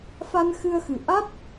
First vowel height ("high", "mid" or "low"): low